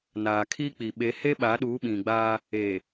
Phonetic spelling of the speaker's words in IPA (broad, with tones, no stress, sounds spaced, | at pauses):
n aː˨ kʰ i˦ k͡p i˨ ɓ e˨˦ h e˦ ɓ a˨˦ ɗ uː˨˦ ɓ ĩ˨ ɡ͡b aː˦ | e˨